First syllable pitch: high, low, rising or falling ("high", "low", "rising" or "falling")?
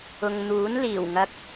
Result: low